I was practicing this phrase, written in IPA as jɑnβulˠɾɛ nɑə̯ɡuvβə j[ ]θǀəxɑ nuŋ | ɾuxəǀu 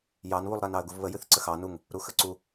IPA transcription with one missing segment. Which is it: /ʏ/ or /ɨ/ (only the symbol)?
ɨ